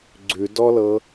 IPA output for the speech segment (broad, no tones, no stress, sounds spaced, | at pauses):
ɡ͡ǀ ʉ d ɔ l ɤ